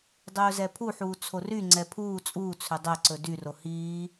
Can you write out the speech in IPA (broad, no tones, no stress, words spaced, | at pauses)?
dˤɵːzɛpʰuħuː t͡sʰoryŋ͡ǀɛ pʰuː t͡sʼuːt͡sʰø dˤɛǀɵ dyro hiː